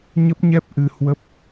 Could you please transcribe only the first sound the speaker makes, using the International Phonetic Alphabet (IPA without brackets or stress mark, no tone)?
ɲ